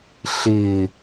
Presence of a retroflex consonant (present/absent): absent